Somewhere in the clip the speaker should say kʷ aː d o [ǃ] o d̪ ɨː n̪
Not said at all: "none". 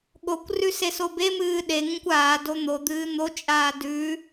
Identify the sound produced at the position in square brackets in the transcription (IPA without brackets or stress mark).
n̪